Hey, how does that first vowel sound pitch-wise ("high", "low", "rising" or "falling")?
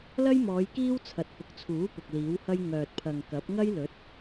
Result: high